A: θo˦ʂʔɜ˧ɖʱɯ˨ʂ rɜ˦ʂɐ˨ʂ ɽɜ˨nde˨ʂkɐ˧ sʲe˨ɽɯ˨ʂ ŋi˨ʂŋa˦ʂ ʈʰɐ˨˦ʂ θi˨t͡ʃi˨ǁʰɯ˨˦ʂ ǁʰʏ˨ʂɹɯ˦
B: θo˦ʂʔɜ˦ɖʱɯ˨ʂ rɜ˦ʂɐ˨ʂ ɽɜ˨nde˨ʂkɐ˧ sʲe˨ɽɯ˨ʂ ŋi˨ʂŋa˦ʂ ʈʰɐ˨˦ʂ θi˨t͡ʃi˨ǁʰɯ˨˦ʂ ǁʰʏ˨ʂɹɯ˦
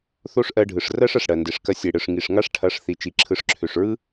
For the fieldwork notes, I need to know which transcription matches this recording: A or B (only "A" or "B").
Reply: A